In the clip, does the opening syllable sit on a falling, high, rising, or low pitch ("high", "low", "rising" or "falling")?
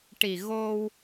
low